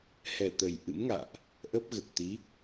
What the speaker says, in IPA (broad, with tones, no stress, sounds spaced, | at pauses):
h ɛ˨˩ t̪ ə˨˩ j ʔ ɨ̰˧˥ m ŋ a̰ː˧˨ ʔ | ʔ ə˦˥ p̚ ɣ ə˨˩ t̚ t̪ i˨˦